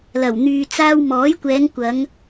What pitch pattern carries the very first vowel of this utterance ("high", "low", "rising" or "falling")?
low